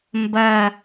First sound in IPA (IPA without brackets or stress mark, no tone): m